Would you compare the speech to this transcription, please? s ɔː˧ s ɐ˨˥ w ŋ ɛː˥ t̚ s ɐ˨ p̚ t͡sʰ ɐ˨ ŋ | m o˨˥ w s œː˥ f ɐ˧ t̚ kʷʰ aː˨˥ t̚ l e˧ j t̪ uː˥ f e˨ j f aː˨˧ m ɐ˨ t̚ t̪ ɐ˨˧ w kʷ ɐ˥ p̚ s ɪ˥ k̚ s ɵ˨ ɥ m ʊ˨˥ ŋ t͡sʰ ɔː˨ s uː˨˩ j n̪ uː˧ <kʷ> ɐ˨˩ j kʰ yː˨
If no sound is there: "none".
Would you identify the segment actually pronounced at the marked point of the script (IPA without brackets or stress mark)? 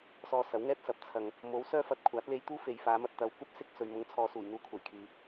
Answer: kʷʰ